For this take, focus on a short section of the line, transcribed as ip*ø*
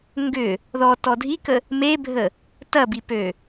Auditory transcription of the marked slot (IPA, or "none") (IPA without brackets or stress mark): ø